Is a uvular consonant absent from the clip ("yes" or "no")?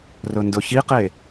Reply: no